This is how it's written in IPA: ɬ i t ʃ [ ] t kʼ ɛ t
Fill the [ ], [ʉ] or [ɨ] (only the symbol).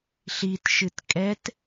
ɨ